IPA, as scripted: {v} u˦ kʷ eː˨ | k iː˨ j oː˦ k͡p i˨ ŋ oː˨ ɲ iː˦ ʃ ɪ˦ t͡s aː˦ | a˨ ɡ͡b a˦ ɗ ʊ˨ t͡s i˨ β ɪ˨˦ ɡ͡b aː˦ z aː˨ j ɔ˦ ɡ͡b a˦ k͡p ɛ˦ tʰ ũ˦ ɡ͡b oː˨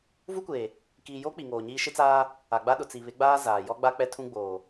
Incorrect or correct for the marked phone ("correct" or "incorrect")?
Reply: correct